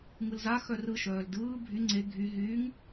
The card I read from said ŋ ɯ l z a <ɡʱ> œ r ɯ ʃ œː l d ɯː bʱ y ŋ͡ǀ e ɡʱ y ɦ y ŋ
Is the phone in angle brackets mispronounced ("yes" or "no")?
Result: yes